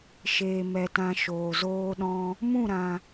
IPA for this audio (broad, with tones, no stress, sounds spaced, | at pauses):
ʃ eː˨ m ɛ˨ t ã˧ ʃ oː˨ z oː˦ ɗ ɔ̃˦ | m ũ˦˨ ɾ ã˨